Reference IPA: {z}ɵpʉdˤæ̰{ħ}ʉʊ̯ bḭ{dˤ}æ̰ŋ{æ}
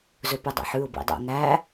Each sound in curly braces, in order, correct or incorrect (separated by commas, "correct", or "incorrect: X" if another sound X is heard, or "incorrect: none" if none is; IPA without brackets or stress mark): correct, correct, correct, correct